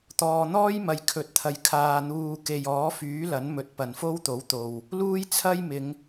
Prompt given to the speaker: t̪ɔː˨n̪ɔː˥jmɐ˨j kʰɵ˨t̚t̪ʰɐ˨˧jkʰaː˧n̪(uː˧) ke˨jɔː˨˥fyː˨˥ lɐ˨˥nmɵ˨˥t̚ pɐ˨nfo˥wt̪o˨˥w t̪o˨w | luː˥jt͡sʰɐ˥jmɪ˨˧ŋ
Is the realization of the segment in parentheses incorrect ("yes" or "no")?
no